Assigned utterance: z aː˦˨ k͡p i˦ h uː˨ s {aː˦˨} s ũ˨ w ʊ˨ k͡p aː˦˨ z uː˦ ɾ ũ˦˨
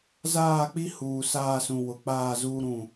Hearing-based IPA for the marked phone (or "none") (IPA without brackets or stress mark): aː˦˨